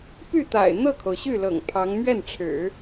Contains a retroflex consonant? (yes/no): yes